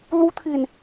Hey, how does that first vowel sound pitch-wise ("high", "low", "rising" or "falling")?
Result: high